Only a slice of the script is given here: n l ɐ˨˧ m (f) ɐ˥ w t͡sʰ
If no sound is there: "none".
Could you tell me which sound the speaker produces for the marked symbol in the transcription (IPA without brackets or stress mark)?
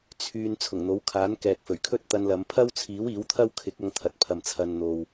pʰ